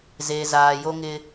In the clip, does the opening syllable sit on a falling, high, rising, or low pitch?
low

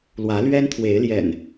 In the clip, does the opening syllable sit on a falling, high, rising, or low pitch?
rising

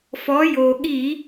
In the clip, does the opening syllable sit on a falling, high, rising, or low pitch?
rising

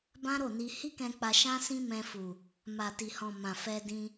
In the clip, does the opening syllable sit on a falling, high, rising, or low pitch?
high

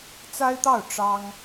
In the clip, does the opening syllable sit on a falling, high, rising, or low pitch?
high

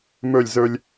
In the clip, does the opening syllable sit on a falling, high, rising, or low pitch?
falling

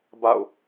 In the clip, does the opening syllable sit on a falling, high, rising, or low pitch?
falling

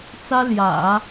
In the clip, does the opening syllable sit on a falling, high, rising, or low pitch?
high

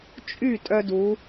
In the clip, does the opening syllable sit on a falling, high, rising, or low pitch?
falling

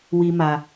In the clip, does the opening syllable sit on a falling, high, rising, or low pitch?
high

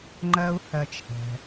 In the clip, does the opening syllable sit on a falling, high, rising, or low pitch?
high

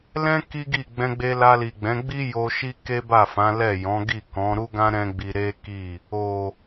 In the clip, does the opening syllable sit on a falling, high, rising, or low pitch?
high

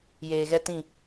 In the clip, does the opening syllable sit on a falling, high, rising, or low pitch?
low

